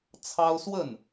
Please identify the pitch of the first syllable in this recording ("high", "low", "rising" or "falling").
high